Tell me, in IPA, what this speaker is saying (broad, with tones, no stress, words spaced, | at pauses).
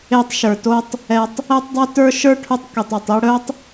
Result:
e˧tˤʃə˞˨to˧tˤ | ɛ˨tˤ | e˧tˤdˤɛ˧ tə˞˦ʃə˞˦ʈʰu˧tˤ ki˨tˤu˨tˤi˧ ɽœ˦tˤ